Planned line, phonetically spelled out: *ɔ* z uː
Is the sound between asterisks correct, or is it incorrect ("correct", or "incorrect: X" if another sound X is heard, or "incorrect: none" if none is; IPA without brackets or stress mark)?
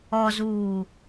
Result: correct